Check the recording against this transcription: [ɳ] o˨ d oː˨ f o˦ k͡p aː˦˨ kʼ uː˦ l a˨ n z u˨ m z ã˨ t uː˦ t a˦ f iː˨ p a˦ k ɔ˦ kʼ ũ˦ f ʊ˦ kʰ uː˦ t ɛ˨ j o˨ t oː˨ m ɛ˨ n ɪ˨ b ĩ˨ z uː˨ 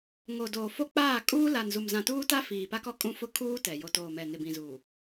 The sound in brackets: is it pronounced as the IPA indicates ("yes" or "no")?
no